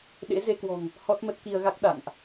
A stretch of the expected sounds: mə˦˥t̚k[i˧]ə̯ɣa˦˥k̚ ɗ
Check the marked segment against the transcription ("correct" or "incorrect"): correct